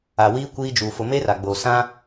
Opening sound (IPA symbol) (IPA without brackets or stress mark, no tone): a